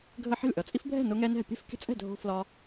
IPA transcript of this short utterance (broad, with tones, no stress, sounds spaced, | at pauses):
ɡʱ ə˦ ħ ə̤˥˩ lʲ ʔ ʌ˩˧ t͡sʼ i˦ f bʱ ɛ̤˥˩ n ʊ˦ ŋ ɛ˦ n ɛ̤˥˩ pʲ ɛ̤˥˩ f kʲ ə̤˦ t͡sʼ ɛ̤˥˩ dʱ o̤˦ f l ɒ˦